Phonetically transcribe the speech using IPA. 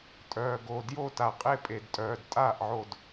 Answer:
tʼ œː˨˩ ɡ o˨˩ d j o˥˩ t a˨˩ qʼ e˥˩ pʼ e˨˩ d tʼ œː˨˩ d tʼ aː˥˩ ʔ ʕ o˨˩ d

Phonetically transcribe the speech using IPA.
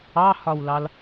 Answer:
ɑ h ɒ w l ɑ l

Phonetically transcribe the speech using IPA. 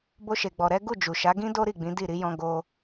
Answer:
b o˧ ʃ e˨ ɡ͡b ɔ˨ ɾ ɛ˨˦ ɡ u˦˨ d͡ʒ u˨ ʃ a˨˦ ɡ ĩ˦ d o˦ ɾ i˦˨ ɡ͡b ĩ˨˦ d i˦˨ ɾ i˨˦ j ɔ̃˧ ɡ o˧

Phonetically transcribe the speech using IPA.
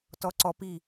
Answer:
t ɔ ǀ ɔ p i

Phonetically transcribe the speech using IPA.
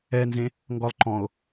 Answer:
ɛ n z ẽ | ŋ ɡ ɔ lˠ ǃ ɔ̃ o̯

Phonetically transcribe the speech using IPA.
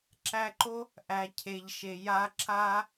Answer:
ǁ æ˧ ǃ o˦ | ʔ æ˨ cʰ e˨ ʎ ʃ e˨ j a˧ ǁ a˦

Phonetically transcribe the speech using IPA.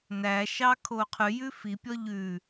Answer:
n æ ʃ ɑ kʰ o qʰ ʉ j ʉ f i pʲ ɔ ʎ ʉ

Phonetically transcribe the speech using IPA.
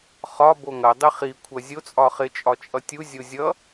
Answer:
χ ɒ b o ŋ ɐ dˤ ɪ χ i kʷʰ ɐ zʲ o t͡sʼ ɒ χ ɪ t͡ʃʼ ɒ t͡ʃʼ ʌ tʲ u zʲ o zʲ ʌ

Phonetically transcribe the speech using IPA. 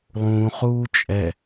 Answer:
lˠ ũː χ uː t͡ʃʼ ɛ

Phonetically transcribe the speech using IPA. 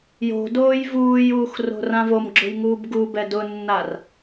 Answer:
j o̤ d oː j v uː j uː x r o̤ r ã v o m ɡ͡ǁ ʊ j ŋ uː b ɡ u b ɛ d ʊ nː a r

